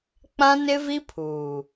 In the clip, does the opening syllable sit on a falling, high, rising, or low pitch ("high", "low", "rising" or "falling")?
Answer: high